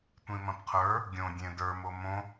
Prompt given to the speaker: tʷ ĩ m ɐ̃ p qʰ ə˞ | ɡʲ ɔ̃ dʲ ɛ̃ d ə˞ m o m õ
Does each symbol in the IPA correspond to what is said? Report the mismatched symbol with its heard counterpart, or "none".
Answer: ɔ̃ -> õ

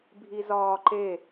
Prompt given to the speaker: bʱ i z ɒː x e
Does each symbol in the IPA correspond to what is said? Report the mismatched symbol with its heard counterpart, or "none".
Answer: x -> ǃ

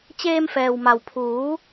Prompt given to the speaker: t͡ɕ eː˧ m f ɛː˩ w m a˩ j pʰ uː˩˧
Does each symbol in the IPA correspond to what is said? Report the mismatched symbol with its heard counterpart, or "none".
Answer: j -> w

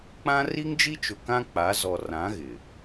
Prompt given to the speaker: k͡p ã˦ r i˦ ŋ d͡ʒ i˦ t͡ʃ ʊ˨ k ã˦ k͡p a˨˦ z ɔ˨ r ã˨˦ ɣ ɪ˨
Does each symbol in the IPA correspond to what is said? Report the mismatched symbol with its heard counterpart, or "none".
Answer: none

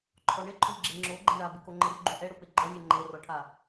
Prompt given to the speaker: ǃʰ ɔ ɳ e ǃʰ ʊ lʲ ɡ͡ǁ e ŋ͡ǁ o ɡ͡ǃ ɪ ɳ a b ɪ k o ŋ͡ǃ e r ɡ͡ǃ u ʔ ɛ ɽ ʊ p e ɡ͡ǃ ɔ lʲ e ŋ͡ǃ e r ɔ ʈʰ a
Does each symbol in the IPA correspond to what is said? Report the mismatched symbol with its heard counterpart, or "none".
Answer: none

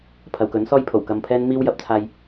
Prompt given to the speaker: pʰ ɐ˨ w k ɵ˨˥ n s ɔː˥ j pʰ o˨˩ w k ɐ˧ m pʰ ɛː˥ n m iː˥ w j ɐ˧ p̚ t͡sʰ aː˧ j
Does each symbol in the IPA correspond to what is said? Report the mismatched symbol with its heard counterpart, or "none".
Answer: none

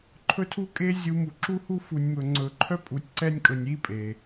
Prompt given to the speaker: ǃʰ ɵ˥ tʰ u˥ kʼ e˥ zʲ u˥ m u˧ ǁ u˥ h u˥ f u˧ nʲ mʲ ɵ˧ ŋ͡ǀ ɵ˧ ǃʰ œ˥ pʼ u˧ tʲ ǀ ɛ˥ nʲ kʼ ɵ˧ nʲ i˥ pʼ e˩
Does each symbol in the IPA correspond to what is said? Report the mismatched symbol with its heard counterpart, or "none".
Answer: mʲ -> m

